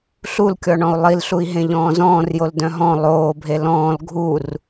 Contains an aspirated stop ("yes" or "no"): no